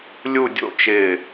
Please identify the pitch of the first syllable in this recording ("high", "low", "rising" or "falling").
falling